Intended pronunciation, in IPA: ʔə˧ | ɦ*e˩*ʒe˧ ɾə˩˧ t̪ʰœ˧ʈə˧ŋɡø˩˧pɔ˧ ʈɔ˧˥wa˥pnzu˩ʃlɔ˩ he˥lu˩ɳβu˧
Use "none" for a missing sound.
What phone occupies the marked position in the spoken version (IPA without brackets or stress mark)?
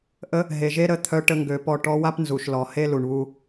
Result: e˩